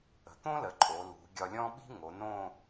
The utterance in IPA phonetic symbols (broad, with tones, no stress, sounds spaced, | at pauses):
ə̤˩˧ t̪ õ˥ l ə˩˧ ǃʼ o˩˧ l ṳ˩˧ ɡʲ ɒ˧ lʲ ɔ̃˥ ɓ i̤˥ ŋ o˩˧ n õ˥˧